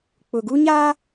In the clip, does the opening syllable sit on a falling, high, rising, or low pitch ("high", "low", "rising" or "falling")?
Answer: low